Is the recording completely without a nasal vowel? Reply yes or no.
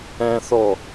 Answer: no